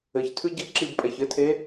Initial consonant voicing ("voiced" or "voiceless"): voiceless